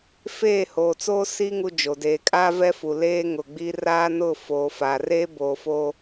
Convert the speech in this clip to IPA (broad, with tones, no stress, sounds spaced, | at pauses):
f eː˦˨ h oː˨ t͡s oː˦ s i˦ ŋ u˦ d͡ʒ o˨ d eː˨ kʼ aː˦ v ɛ˦ f u˨ l eː˦ ŋ ʊ˨ ɡ͡b i˦ r aː˦ n ʊ˦˨ f oː˨ f aː˨ r eː˦ b oː˨ f oː˦